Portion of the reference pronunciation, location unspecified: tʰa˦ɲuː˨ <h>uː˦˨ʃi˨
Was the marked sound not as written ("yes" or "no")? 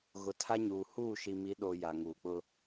no